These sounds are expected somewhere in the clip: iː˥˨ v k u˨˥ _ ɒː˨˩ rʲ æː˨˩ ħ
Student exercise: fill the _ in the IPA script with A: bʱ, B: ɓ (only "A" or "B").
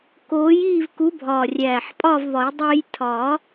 A